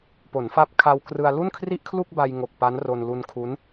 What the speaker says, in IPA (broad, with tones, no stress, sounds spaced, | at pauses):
p o˩˦ n f a˦˥ p̚ kʰ a˧ w k r ɯ˧ a̯ l u˥˩ n kʰ r i˥˩ ʔ kʰ l u˥˩ k̚ b a˧ j ŋ o˨˩ k̚ p a˦˥ n r o˧ n l u˧ n kʰ u˦˥ n